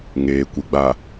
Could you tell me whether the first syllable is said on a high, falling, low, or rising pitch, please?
low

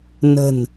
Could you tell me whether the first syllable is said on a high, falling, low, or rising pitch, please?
low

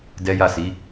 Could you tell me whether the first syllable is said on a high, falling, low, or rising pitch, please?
high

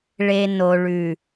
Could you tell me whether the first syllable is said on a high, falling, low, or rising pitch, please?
low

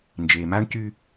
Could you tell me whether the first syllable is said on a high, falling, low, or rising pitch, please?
low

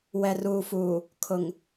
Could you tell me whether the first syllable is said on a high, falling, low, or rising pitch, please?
low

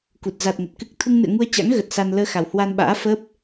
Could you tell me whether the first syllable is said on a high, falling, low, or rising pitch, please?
low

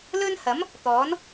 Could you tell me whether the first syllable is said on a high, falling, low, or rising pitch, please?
high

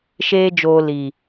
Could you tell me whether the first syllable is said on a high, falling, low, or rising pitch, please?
high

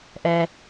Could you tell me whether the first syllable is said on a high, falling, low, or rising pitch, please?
low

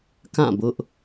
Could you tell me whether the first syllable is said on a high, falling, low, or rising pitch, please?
falling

